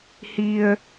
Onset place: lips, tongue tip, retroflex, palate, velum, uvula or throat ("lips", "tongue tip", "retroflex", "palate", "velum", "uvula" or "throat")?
throat